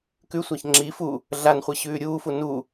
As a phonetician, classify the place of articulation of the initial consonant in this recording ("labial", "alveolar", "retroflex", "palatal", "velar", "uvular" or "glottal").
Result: velar